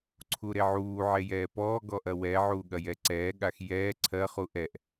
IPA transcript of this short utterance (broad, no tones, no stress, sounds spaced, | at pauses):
ǀʰ u ɾ e ʕ uː ʕ e j ɛː p ɔː ɡ ɔ ʔ ɐ w ɛ ʕ uː ɠ ɐ j ɛ ǀ ɛː ɠ a x j ɛː ǀʰ ɜ χ u ʔ ɛ ʔ